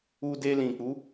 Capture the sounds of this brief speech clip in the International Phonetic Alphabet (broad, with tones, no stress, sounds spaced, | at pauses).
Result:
u˧ d e˧ l ĩ˨ k͡p u˨˦